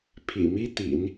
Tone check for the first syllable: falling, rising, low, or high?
low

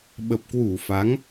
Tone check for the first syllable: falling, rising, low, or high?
low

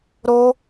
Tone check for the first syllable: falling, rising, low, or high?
high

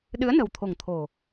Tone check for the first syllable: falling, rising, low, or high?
rising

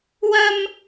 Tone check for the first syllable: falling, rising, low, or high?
high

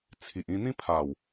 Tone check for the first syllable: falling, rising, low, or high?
low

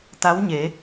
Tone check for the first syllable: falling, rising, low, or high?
rising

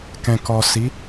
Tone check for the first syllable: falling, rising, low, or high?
low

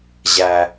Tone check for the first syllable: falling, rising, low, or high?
high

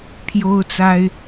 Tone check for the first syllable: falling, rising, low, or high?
high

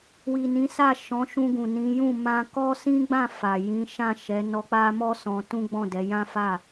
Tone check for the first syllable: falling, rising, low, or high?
low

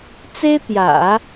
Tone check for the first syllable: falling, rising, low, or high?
high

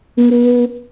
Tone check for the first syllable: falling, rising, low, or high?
high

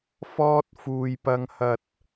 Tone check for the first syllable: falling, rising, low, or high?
high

